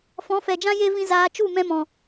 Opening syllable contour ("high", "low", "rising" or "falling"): rising